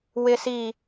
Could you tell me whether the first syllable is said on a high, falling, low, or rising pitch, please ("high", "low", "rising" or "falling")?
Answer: low